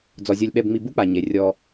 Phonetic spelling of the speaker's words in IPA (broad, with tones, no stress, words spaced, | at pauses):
d͡zɔ˩zʲo˨lʲɓɛ˨bŋ͡mi˨ bu˥k͡pa˩ ɲe˩ rʲɔ˨